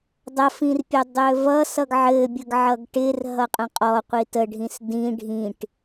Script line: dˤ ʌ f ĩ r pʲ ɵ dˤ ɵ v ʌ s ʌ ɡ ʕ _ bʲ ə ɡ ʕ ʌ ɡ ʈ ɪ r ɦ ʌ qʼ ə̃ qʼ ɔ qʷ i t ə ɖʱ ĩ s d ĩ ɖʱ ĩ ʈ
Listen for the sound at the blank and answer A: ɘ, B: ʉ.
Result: A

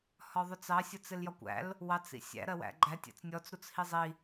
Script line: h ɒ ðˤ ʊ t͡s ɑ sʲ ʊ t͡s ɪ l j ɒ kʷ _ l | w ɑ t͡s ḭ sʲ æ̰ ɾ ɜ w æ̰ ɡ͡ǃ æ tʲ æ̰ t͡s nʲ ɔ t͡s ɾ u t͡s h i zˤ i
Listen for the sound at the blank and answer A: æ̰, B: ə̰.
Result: A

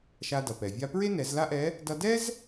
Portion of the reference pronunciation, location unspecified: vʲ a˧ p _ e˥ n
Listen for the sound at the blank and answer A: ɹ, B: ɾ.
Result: A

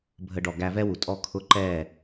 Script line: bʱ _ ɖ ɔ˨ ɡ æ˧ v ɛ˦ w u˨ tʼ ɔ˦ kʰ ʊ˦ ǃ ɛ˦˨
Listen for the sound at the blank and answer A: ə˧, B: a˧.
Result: A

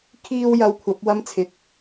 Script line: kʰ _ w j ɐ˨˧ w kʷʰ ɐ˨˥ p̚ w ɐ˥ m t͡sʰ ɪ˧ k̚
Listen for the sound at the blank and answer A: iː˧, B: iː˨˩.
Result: A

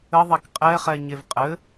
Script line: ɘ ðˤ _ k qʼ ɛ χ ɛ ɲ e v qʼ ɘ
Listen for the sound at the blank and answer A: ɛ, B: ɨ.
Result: A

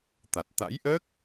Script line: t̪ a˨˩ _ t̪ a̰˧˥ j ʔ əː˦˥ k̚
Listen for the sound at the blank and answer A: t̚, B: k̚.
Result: A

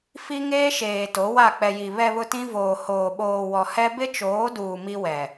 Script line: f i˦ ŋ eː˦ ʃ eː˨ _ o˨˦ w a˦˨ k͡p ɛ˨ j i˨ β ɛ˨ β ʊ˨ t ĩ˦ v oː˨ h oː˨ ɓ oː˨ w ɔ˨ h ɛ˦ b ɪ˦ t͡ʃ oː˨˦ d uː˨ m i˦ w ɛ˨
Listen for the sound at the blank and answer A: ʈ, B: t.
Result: B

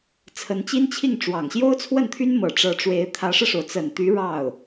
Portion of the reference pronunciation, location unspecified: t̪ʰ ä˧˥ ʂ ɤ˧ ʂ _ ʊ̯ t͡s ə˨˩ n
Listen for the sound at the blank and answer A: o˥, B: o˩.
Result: B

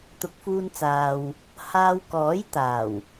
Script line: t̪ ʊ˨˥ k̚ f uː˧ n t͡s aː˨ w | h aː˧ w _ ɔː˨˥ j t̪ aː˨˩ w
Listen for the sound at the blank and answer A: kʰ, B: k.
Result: B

